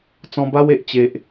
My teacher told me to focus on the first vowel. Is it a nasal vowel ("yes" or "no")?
yes